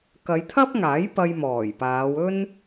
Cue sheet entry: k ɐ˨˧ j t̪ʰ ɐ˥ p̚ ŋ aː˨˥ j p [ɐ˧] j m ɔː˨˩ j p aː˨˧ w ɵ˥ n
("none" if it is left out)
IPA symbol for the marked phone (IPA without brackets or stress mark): ɐ˧